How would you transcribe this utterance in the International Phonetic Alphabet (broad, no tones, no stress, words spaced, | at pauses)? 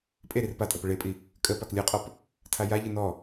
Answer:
pʼe ɾirpatʼə pəɭepʼi | kʼə paklʲɯqʼɔp | tʰajaʎɯ nɔ